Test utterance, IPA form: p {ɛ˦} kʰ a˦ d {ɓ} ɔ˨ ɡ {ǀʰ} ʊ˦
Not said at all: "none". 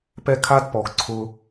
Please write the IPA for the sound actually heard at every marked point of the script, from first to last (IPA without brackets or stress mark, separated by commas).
ɛ˦, p, ǀʰ